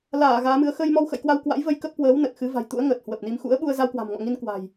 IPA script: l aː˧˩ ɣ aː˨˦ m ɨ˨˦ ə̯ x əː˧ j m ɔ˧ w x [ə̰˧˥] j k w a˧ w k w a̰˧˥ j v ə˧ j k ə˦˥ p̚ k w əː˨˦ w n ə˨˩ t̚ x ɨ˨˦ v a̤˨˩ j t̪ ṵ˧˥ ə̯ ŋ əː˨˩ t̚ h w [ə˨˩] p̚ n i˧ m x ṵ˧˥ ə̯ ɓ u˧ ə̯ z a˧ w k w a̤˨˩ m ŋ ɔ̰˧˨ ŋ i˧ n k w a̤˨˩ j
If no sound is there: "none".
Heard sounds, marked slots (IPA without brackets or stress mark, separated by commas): ə̰˧˨, ə˨˩